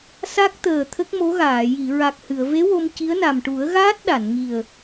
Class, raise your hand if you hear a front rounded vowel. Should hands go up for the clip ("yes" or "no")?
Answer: no